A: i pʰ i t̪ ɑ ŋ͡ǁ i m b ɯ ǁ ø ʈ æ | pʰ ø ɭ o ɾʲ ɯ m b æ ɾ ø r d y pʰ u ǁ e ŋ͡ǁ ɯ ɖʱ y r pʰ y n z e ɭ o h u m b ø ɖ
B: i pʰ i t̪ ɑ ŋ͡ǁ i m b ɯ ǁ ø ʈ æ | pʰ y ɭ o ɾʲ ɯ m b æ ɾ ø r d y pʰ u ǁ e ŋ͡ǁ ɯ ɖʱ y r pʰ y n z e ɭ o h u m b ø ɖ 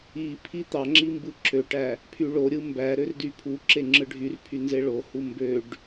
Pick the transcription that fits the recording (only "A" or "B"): B